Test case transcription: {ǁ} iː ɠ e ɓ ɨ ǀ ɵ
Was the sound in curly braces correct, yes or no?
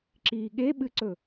yes